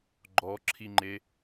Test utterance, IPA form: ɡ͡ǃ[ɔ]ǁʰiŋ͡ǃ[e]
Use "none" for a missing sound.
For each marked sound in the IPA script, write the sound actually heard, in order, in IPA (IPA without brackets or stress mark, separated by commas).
ɔ, e